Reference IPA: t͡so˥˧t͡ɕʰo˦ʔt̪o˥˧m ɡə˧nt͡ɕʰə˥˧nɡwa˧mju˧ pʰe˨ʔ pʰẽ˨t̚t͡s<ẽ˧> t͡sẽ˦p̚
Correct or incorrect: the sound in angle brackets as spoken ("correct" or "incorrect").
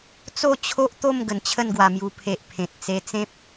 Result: incorrect